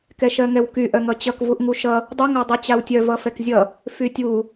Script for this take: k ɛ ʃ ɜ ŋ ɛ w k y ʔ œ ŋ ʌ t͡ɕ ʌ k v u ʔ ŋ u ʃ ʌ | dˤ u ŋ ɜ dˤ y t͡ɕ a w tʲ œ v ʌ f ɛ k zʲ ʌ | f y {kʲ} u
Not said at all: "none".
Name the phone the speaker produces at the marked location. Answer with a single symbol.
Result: tʲ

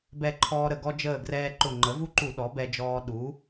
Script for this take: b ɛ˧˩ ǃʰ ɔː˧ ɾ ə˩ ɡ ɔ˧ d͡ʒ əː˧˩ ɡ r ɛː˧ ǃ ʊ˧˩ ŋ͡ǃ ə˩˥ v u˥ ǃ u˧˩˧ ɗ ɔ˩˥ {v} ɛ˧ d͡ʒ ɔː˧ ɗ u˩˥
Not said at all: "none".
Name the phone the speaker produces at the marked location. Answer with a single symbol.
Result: b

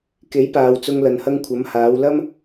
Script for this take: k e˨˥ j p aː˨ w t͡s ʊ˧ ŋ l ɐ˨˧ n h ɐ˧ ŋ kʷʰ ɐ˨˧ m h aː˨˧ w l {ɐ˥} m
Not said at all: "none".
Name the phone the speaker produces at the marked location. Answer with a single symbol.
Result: ɐ˥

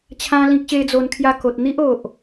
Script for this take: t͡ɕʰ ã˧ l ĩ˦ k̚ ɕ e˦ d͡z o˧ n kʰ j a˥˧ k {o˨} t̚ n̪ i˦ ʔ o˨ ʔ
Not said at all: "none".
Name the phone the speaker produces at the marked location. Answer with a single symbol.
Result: o˨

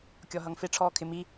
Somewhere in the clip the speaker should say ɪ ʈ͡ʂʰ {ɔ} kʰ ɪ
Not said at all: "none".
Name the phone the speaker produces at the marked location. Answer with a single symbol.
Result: ɔː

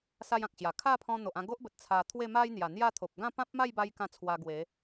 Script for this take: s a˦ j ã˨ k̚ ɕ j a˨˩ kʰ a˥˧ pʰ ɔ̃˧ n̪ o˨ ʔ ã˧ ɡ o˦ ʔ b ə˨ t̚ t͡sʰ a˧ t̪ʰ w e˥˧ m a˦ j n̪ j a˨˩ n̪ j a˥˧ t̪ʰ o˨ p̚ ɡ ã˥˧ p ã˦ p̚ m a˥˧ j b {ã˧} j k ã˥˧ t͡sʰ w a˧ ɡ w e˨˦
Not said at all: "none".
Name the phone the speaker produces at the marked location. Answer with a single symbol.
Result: a˧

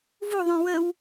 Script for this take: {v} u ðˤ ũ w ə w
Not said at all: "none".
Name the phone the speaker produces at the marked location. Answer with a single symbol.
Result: v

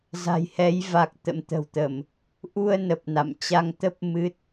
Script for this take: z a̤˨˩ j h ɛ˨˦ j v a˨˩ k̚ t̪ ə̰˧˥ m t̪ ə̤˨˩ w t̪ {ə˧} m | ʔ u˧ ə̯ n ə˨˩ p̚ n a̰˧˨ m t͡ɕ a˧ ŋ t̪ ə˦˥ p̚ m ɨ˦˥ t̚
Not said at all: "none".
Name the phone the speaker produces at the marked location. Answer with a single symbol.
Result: ə˧˩˨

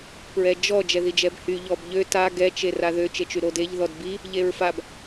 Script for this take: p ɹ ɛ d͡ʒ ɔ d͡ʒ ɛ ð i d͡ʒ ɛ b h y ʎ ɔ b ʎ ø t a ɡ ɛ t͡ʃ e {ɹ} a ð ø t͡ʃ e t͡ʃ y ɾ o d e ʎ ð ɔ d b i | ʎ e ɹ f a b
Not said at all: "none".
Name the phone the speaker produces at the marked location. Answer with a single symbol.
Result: r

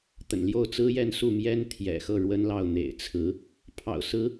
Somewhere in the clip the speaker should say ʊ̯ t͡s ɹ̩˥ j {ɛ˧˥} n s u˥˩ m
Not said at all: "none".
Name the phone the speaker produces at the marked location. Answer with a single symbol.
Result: ɛ˥˧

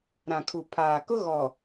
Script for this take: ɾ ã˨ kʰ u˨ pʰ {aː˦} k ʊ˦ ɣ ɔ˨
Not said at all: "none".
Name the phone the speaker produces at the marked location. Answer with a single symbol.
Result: aː˨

